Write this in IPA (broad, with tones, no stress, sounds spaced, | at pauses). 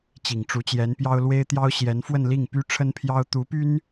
t͡ɕ i˨˩ ŋ ʈ͡ʂ u˧˥ t͡ɕ j ɛ˧˥ n p j ɑ˥ ʊ̯ l w e˥ ɪ̯ t̪ j ɑ˥ ʊ̯ ɕ j ɛ˧˥ n f w ə˥˧ n l i˥˩ ŋ p y˥ ʈ͡ʂʰ ə˥ n pʰ j ɑ˥ ʊ̯ t̪ u˧˥ p y˥ n